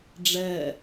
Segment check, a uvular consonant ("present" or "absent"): absent